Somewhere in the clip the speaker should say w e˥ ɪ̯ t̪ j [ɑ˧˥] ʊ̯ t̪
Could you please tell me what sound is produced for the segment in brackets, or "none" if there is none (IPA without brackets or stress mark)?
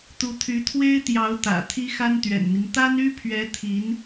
ɑ˧˥